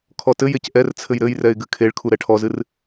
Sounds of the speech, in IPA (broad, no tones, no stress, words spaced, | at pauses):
kʰɔtɘjec ʔɛrt͡sʰɘj ɾɘjrɛɪ̯ ɡɨkʰeɭkʰu ɾɛʈʰɔzɨr